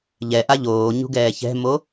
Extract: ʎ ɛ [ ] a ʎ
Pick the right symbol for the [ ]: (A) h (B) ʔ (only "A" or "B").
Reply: B